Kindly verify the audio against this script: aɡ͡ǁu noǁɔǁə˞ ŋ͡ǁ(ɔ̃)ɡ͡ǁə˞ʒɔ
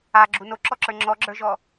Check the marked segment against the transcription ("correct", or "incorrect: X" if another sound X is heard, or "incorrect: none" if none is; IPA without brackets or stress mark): incorrect: ɔ